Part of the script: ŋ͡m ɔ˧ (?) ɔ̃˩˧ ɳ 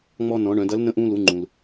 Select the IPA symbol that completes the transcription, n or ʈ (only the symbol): n